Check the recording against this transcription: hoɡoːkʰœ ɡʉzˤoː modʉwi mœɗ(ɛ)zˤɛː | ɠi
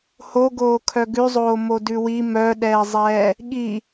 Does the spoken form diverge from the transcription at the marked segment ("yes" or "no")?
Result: yes